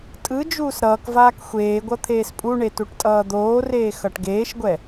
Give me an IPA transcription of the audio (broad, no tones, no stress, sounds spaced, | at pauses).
tʼ ɯ d͡ʒ uː s ɾ ʌː k v aː k xʷ eː ɡʷ ʌ t̪ʰ eː s pʼ u ɳ e t u ʈ tʼ ʌː d̪ oː r eː x ʌ ʈ ɡ eː ʃ ɡʷ ɛ